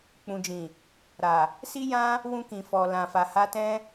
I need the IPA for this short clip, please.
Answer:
k͡pũ˨d͡ʒĩ˨ | ɾa˨ | si˦jã˦ | wũ˧kĩ˨fɔ˨ lã˨fa˨ha˧tɛ̃˦

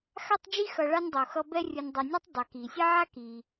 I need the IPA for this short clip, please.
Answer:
xa˥tˤd͡ʒi˥xʌ˨ɭa˦nʲ dˤo˩xʌ˦ bɛ˦rʲɯ˨nʲdˤo˨nʲo˥tˤ dˤɛ˩ki˩sʲe˥ʕa˥ ki˩

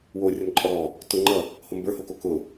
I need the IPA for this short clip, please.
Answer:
worʲʌn ǃʼɔɾɔ | tʊ ŋ͡ǃʌ | hombə˞hoko kʊ

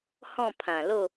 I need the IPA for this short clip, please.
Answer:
hɔ̃˥˧pʰã˨˩lo˥˧

